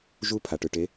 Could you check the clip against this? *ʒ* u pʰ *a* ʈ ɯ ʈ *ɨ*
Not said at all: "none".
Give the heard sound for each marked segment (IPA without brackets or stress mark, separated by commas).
ʒ, a, e